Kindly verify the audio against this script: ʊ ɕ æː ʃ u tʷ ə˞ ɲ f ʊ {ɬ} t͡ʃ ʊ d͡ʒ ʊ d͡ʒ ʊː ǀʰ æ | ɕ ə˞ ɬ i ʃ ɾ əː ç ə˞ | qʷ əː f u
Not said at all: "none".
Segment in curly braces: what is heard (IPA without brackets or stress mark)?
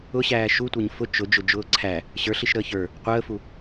none